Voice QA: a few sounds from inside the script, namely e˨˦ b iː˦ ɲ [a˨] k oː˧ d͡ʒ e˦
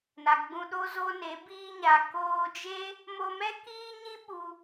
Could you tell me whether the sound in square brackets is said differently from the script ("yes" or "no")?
no